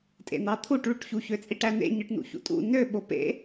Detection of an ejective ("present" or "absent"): present